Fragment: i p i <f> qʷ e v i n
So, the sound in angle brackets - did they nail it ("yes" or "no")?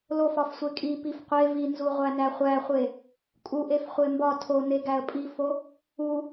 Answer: yes